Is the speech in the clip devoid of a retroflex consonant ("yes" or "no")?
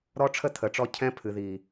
no